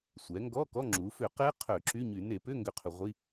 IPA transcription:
sʷ ɛ˩˧ ŋ ɡ ɔ˧˥˧ k ɔ˧˥˧ ŋ͡ǁ u˩˧ f ʏ˧˩˧ q ɛ˦˥ qʰ œ˧˩˧ ǁ y˧˥˧ ɲ y˧˩˧ n e˧˩˧ p ʏ˧˥˧ ŋ ɡ ʏ˦˥ qʰ ʏ˧˩˧ ʁʷ i˧˥˧

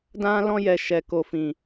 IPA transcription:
d ã˦ l ɔ̃˦ j ɛ˦˨ ʃ ɛ˨ k o˨ f ĩ˨

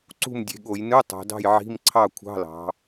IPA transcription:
ǀ ṳ˥˨ m dʲ e̤˩˧ ɠ o˧˩˧ j n ɯ˧˥˧ tˤ o̤˩˧ d ɑ̤˥˨ j ʕ i̤˧˥˧ m ǀʰ ɑ˥˨ kʷʰ ɑ̤˧˥˧ l ɑ̤˩˧

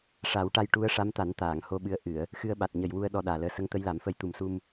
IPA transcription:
ʂ a˨˩˦ w ʈ a˧ j ʈ u˧˥ ə̯ ʂ a˧˥ m t̪ a˨˩˦ n t̪ aː˨˩˨ ŋ h o˧ ɓ ɨ˧˥ ə̯ ʔ ɨ˨˩˨ ə̯ | x ɨ˧ ə̯ ɓ a˨˩ t̚ ɲ ə˨˩ j w u˧ ə̯ ɗ ɔ˧ ɗ aː˨˩ l əː˧ s ə˧˥ ŋ t̪ ə˧˥ j l a˨˩˦ m f ə˧ j t̪ u˨˩ m s u˧ m

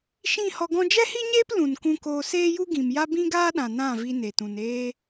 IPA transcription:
ʃ ĩ˦˨ h ɔ˧ ɡ ɔ̃˦ d͡ʒ ɛ˦ h i˦ ɲ eː˦ p l ũ˨ n k ũ˧ k oː˧ s eː˦ j u˦ ɡ ĩ˨ m j a˦ b ĩ˦ ɡ aː˦ ɗ ã˨ n ã˦˨ v i˧ n e˨ t ũ˨ n eː˧

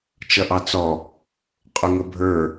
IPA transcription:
t͡ʃ ʌ ʔ ɑ t͡s ɔ | qʼ ʊ ŋ ə bʱ ə˞

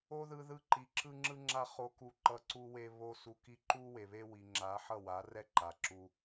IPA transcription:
o˦ ð ɯ˧ ð ɯ˧ ǃ i˨ ǁ ɯ˦ ŋ͡ǁ ɯ˦ ŋ͡ǁ a˦ χ o˧ k u˧ ǃ ʌ˧ ǀ u˧ w e˧ β o˦ s u˧ k i˦ ǃ u˦ w e˨ β e˦ w i˨ ŋ͡ǁ a˨˦ ħ ʌ˦˨ w a˨˦ r ɛ˦ ǃ a˨ ǁ u˦

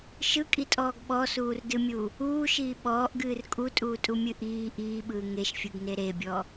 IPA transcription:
ʃ ɯ kʼ i tʼ ɔː ɡ ɓ ɔ s uː r d ɨ mʲ u | uː ʃ iː ɓ ɔː ʔ ɡ ɨː r kʼ u tʼ uː tʼ u mʲ ɨ ʔ iː ʔ iː ɓ ɯː ŋ e ʃ fʲ ɯ ɡ n e ɾ e bʲ ɔ

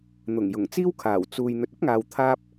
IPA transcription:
n̪ ʊ˨˩ ŋ j ʊ˨˩ ŋ t͡s iː˥ w kʰ aː˨˩ w t͡s uː˨ j n̪ ɵ˨ t̚ ɐ˥ p̚ ŋ aː˨ w t̪ʰ aː˧ p̚

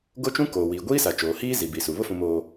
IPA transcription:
ɡ o˦ t͡ʃ ũ˦ k oː˨ w iː˨ ɡʷ iː˦ s a˨ t͡ʃ oː˨ h iː˦ z i˨ b i˨ s u˨ β ʊ˦ f ũ˨ m oː˨

